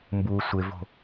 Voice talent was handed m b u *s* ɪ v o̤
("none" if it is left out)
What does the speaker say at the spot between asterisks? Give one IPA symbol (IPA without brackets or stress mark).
sʷ